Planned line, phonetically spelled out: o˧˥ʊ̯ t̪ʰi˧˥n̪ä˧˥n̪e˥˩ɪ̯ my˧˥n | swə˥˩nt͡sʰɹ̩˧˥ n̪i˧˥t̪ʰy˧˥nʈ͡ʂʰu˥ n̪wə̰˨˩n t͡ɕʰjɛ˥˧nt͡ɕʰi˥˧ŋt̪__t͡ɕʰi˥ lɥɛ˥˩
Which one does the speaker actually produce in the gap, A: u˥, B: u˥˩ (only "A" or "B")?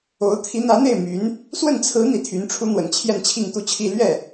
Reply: B